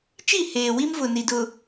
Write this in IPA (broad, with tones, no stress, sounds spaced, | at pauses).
t͡ʃ i˦˨ h eː˨ w i˦ m v ʊ˨ n i˨ d ʊ˨